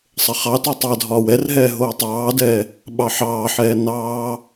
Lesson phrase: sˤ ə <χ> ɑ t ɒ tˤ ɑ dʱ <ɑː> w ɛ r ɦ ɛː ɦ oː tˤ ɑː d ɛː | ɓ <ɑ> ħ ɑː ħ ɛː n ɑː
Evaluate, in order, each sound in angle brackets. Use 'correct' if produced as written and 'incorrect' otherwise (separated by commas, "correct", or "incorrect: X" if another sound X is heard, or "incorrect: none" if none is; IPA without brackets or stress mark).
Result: correct, incorrect: ɒː, correct